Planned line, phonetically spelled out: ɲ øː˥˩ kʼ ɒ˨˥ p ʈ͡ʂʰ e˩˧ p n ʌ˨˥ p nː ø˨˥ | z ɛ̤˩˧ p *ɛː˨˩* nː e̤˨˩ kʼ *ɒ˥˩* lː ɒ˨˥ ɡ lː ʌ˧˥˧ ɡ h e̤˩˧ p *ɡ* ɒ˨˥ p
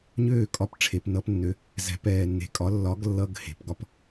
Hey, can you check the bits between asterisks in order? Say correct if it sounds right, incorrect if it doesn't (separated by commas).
correct, incorrect, correct